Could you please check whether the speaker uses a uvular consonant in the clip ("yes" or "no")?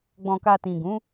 no